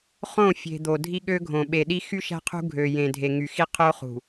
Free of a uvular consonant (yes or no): no